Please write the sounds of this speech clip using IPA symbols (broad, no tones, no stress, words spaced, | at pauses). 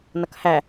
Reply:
nʌkhæ